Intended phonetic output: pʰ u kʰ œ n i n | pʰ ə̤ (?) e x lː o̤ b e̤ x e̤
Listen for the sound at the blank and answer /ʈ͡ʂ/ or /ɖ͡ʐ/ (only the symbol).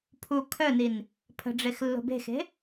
ɖ͡ʐ